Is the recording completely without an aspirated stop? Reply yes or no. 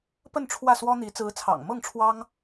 no